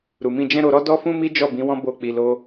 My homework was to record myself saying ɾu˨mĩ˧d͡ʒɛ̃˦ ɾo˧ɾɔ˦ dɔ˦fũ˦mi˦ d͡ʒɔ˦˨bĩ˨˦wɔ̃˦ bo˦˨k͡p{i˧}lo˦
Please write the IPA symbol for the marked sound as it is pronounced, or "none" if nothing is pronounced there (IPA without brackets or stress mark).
i˧